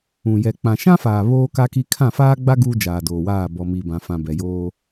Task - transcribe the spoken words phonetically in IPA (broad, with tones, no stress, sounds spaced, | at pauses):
ũ˨ j ɛ˨ k͡p ã˨ ʃ ã˦ f aː˨ β oː˦ k a˦ k i˦ kʰ ã˦˨ f aː˦ ɡ͡b a˦ ɡ uː˦ d͡ʒ aː˨ d oː˨ w aː˦˨ b ɔ˨ m i˨ b ã˨ f ã˨ b ɛ˨ j oː˦